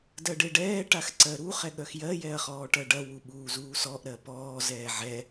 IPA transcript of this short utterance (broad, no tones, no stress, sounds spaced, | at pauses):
d ɜ ɖ e ɖ ɛː ʈ a x ǀ ɜ ɾ u χ ɛ ɠ œ x j ɜ j ɛ ɐ̯ χ ɔː ʈ ɜ ɖ ɐ w u ɓ uː z uː s ɔ ʔ ɾ ɜ p ɔː z ɛː ʕ ɛ